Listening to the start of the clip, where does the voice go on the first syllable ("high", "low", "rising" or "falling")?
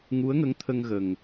rising